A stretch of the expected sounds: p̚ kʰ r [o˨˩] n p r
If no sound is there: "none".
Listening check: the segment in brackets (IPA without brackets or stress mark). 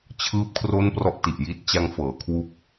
o˥˩